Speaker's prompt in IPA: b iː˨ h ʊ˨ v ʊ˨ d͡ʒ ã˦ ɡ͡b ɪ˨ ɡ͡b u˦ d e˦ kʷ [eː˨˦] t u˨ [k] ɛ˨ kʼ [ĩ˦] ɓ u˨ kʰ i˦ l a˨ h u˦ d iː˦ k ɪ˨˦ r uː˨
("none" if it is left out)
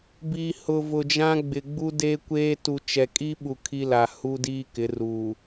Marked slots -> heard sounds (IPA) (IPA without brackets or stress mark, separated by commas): eː˦, t͡ʃ, i˦